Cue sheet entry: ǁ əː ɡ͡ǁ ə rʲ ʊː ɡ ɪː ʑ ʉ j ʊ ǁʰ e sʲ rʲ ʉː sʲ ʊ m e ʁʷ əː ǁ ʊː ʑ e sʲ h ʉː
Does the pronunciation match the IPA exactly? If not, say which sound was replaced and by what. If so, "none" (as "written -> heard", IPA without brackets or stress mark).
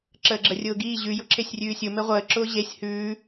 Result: ɪː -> iː